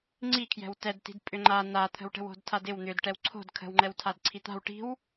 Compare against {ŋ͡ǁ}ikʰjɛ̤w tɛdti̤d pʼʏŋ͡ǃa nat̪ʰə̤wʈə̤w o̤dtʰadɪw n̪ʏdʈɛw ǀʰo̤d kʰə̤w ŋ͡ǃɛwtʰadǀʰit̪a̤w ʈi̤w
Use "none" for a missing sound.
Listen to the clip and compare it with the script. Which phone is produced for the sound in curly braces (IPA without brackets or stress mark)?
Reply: ŋ͡ǀ